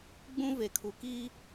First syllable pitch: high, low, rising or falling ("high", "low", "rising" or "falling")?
high